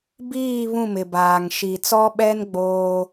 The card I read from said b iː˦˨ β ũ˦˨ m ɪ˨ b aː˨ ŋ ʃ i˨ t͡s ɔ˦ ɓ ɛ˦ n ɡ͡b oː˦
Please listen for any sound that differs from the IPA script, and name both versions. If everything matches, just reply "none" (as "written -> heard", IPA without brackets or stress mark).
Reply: none